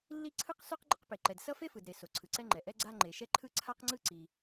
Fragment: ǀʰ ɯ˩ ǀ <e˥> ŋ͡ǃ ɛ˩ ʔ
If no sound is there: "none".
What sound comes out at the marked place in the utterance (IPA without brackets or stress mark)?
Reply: ɛ˥